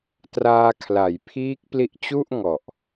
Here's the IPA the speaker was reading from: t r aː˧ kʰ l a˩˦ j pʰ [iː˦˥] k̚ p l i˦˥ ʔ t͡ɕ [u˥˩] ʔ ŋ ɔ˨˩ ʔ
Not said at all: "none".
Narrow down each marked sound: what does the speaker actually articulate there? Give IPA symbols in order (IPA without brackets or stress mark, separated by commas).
iː˦˥, u˥˩